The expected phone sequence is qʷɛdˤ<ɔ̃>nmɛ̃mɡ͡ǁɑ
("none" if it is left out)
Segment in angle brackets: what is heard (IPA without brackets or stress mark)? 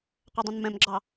ə̃